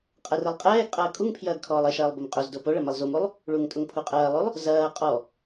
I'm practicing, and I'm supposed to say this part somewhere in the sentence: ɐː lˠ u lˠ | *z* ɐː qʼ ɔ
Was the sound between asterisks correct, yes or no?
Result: yes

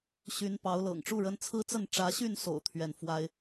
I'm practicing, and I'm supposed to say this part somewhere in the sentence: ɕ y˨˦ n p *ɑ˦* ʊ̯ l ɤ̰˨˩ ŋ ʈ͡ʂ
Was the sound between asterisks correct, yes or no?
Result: no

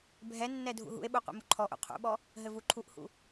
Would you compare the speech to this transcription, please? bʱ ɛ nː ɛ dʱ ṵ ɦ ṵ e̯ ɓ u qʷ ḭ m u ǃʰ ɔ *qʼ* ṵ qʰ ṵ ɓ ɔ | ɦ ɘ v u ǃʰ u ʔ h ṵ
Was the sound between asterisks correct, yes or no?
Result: no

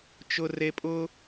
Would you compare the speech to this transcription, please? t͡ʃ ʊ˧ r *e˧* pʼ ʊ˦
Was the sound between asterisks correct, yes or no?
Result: yes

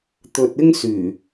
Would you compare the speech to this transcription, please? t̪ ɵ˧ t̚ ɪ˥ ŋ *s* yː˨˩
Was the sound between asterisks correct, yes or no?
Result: yes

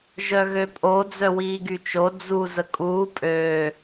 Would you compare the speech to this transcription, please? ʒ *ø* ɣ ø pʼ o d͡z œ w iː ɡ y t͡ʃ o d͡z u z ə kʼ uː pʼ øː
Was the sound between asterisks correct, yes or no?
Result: no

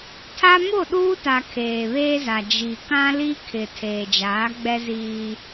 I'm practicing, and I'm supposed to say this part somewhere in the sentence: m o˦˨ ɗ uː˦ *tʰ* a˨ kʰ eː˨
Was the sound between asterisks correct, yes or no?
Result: no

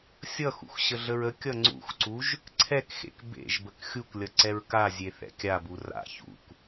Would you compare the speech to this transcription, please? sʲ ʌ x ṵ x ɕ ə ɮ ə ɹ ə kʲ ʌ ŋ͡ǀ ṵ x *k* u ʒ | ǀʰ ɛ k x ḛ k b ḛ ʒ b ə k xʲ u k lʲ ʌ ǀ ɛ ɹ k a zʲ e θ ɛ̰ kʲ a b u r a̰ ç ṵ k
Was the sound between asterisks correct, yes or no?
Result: no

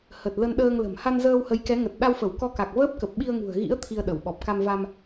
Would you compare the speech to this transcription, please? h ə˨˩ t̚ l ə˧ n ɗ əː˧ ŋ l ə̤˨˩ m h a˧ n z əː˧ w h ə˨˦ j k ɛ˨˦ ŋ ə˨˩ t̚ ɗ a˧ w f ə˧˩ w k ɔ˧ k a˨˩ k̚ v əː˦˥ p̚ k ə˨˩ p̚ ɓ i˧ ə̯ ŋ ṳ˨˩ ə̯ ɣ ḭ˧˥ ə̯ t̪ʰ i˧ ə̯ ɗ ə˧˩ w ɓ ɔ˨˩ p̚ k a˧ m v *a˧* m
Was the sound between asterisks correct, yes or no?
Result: yes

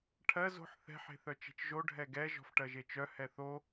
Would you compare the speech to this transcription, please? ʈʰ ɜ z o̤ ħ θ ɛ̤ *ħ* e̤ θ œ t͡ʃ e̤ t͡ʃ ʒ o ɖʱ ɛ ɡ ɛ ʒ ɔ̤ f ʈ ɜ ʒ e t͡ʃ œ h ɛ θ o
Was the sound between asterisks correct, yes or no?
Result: yes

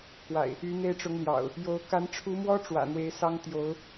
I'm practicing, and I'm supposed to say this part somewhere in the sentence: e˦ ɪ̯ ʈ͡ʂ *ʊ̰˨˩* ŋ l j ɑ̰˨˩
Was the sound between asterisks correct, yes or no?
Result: no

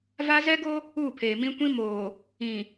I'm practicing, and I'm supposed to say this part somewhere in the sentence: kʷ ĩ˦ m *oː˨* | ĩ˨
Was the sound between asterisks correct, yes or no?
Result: yes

